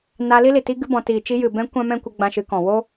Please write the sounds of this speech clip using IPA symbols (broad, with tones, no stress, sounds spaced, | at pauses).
n a˧ l i˧ l i˨ t i˧ ɡ ɨ˧ b ɔ̃˨ t iː˨ t͡ʃ i˧ j ɨ˨ b ɛ̃˧ kʷ ã˦ m ɛ̃˦ kʷ ə˧ ɡ͡b ã˧ ʃ ɨ˨˦ k ɔ̃˨ w o˦